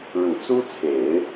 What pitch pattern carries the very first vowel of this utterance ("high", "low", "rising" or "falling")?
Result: low